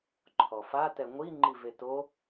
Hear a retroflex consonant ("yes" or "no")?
no